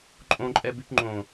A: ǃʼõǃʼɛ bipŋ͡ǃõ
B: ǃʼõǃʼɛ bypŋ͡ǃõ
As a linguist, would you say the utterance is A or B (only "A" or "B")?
B